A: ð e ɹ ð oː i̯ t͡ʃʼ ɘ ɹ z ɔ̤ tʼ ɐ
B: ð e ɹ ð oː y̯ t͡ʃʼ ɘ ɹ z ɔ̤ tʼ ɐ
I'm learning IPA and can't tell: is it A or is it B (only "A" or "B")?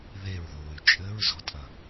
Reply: B